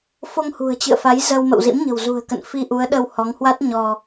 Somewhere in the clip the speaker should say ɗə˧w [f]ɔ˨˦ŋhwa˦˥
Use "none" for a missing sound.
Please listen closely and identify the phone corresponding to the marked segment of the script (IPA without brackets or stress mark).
h